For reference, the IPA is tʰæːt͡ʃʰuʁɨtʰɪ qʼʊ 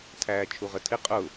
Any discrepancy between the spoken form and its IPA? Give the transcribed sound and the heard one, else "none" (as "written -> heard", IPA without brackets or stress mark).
ɨ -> ə